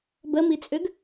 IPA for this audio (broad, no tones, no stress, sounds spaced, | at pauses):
b ə m i t͡sʼ ʏ ɡ